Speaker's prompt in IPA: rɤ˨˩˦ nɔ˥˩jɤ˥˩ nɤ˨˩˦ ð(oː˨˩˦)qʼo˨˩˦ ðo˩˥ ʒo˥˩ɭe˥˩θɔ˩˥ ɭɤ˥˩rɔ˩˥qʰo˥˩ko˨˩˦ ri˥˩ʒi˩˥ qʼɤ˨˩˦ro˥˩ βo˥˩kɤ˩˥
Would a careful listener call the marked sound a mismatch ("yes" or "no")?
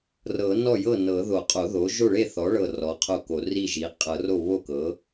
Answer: yes